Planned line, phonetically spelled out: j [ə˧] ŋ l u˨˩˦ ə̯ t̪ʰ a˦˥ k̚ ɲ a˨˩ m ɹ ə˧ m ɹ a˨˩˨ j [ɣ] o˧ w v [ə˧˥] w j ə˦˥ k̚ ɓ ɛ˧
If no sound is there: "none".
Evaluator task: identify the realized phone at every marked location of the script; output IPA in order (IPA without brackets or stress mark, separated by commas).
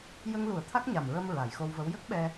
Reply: ə˧, x, ə˧˥